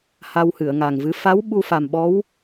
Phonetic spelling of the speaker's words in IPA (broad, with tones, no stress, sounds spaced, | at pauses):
h a˧ w h ɨ˨˩˨ ə̯ ŋ a˨˩ ŋ v ɨ˧˥ f a˧˥ w ɓ u˧ f a˨˩ m ɓ ɔ˧˥ w